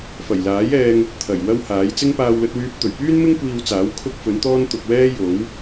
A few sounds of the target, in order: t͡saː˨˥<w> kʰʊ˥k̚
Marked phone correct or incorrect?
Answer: correct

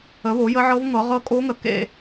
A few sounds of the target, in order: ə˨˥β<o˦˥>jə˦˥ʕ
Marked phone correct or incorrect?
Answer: incorrect: o˨˥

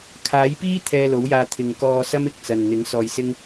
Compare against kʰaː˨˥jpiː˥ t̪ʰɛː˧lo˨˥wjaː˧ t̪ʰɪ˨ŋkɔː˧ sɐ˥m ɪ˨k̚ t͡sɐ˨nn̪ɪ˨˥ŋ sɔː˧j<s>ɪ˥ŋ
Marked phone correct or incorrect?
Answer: correct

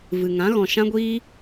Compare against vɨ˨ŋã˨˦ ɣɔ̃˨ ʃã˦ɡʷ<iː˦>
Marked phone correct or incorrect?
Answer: correct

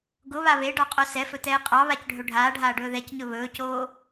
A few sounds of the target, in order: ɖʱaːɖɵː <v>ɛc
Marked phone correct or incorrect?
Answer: incorrect: ð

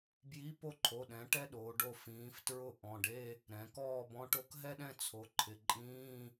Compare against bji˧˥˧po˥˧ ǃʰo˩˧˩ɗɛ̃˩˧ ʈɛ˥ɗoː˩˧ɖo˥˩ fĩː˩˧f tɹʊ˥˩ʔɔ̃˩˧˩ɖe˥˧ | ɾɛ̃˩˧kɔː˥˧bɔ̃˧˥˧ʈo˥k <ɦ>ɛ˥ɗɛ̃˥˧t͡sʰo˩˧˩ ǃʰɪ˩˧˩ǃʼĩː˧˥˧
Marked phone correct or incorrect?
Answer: correct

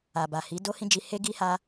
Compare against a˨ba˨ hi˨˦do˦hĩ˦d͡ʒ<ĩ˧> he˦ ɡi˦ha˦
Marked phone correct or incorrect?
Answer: incorrect: i˧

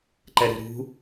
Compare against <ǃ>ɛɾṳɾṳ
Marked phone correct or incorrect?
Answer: correct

